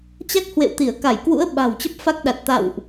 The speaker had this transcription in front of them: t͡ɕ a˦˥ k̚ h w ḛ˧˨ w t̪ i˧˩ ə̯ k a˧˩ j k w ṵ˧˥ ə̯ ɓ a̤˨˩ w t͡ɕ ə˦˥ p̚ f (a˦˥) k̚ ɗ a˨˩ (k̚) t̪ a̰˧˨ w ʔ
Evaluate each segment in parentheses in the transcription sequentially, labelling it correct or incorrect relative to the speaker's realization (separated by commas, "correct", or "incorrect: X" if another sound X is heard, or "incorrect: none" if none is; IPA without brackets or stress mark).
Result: correct, incorrect: t̚